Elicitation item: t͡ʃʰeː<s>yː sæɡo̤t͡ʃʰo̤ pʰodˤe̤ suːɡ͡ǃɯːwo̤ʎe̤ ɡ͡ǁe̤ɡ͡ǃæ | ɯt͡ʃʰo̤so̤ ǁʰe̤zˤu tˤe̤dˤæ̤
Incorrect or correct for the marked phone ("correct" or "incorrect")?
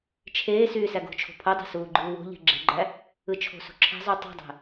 correct